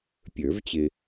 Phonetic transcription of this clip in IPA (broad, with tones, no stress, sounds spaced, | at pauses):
pʲ ə˞˨˩˦ v t͡ɕ ɪ˨